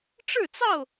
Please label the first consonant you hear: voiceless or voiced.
voiceless